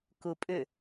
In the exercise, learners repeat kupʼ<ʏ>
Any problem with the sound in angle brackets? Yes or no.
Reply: no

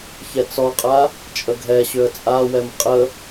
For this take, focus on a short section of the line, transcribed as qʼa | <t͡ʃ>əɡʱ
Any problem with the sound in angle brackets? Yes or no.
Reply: yes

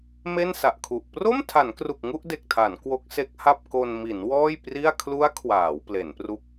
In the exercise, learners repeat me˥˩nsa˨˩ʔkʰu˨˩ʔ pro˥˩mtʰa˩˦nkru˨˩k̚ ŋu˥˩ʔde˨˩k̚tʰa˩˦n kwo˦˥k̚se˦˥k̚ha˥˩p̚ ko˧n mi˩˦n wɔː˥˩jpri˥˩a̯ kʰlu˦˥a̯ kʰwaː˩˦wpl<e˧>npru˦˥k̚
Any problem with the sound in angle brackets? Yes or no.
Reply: yes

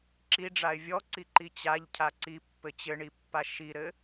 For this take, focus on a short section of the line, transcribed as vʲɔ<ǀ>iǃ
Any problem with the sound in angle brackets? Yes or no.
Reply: no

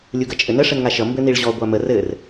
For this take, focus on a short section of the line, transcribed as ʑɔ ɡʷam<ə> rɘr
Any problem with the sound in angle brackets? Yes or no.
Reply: no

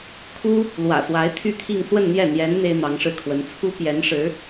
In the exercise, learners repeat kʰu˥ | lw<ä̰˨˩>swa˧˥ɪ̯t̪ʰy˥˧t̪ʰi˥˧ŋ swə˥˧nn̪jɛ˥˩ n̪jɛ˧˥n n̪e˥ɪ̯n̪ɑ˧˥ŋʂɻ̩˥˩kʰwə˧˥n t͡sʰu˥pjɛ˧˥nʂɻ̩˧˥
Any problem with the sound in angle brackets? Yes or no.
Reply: no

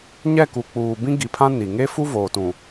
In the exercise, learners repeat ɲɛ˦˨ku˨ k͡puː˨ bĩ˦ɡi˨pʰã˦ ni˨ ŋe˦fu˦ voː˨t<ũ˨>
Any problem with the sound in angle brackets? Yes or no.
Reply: no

